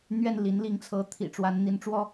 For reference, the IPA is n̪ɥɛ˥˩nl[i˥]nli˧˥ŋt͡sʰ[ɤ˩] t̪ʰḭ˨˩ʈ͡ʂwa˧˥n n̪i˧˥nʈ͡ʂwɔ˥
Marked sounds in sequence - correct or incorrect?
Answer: incorrect: i˧˥, incorrect: ɤ˧˥

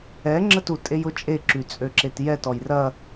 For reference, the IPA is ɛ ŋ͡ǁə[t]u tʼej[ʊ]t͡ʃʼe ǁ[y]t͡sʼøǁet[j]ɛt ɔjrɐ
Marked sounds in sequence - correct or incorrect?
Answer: correct, correct, correct, correct

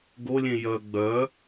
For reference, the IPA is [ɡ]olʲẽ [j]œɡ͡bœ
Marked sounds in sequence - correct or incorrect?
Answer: correct, correct

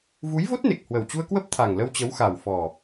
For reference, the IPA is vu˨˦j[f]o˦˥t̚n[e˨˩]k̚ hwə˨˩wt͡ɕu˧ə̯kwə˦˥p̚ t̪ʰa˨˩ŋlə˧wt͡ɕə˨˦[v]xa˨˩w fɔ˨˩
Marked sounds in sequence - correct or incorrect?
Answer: incorrect: v, correct, incorrect: w

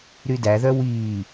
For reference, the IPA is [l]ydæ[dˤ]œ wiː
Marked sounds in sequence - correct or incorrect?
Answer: incorrect: ɾ, incorrect: ð

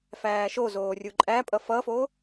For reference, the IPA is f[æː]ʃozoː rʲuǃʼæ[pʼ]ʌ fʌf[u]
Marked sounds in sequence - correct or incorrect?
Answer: correct, correct, incorrect: o

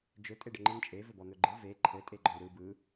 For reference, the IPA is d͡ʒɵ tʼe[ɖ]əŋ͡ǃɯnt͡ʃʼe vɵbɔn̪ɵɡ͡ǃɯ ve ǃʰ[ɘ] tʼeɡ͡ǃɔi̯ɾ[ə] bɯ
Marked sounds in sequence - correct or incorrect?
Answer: correct, correct, incorrect: ɯ

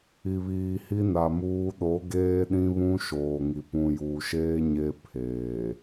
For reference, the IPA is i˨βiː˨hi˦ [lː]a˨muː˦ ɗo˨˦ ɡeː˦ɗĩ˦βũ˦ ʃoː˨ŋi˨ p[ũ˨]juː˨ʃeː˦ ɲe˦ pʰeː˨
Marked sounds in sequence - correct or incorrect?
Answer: incorrect: n, correct

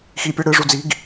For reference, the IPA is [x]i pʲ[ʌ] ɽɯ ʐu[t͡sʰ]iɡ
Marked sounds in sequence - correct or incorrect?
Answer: correct, correct, incorrect: d͡z

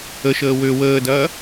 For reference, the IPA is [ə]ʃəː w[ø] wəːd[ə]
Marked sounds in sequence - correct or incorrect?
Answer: correct, correct, incorrect: ɐ

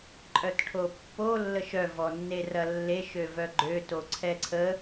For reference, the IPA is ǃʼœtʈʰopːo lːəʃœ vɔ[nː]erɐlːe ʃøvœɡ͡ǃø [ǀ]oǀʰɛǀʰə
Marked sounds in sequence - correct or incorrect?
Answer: correct, incorrect: t

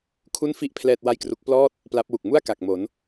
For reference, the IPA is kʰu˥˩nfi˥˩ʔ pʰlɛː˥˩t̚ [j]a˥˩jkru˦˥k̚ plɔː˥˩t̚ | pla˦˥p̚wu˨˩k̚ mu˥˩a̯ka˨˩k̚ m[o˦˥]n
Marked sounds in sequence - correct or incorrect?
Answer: incorrect: w, incorrect: o˩˦

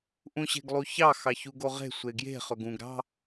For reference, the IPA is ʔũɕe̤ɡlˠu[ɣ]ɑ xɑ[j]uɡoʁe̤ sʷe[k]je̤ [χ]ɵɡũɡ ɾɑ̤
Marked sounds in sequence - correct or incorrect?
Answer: incorrect: ç, incorrect: ç, incorrect: ɡ, correct

